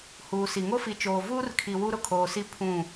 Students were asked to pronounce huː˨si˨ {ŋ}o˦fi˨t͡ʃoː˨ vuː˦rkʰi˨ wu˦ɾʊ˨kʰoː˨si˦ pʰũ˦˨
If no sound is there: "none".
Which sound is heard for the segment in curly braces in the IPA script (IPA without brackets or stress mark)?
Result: ŋ